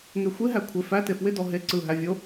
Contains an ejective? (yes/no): no